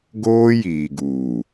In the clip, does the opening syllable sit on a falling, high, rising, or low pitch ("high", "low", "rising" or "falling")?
high